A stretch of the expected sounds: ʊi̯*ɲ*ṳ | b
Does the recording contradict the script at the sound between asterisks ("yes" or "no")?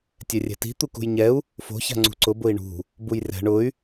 yes